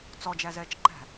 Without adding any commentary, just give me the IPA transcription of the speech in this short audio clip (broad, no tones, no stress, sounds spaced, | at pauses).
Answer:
t͡s ɔ d͡ʒ æ z ɛː t͡ʃ ǃ æ̤